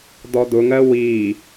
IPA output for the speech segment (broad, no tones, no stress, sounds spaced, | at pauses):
d̪ ɔ d̪ ʊ ŋ ɜ w i